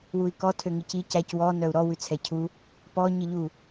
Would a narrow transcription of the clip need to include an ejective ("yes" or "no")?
no